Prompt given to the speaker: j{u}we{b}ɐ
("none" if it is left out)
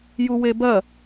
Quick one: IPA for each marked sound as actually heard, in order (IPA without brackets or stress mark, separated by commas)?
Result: u, b